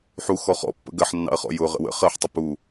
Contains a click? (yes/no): no